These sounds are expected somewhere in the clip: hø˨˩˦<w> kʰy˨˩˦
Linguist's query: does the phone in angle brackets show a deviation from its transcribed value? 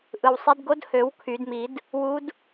no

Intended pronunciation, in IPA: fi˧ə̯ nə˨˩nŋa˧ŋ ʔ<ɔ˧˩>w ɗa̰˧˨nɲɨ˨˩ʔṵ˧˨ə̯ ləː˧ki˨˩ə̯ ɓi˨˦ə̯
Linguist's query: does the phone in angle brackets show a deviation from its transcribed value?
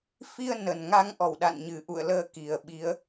no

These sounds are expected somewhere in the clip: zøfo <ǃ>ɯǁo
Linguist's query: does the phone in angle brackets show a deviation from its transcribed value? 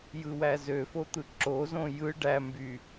yes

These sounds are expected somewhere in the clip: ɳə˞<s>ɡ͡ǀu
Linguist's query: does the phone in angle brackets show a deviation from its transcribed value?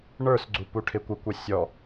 no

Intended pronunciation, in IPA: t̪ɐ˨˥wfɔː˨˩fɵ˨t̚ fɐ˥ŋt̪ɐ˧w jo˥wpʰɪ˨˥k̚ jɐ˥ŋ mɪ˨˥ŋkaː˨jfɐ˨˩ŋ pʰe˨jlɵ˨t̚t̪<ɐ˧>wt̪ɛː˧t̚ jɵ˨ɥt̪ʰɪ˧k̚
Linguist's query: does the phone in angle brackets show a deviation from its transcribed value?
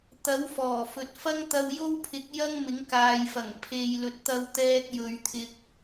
no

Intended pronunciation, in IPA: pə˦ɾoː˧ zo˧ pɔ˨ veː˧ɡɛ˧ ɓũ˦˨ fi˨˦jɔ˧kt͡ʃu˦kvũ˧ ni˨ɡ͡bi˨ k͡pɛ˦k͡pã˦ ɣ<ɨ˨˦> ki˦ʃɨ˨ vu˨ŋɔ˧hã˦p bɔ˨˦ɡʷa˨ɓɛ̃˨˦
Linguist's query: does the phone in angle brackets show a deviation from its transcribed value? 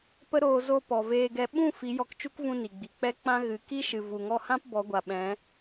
no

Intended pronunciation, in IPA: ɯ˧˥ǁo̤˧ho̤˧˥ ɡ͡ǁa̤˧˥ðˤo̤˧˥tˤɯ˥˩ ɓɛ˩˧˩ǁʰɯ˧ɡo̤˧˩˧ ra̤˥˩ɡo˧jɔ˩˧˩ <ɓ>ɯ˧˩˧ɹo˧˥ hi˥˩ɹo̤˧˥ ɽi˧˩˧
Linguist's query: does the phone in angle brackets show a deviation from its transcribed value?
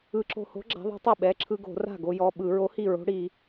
no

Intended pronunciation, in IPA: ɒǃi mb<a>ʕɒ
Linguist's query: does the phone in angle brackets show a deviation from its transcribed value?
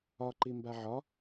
no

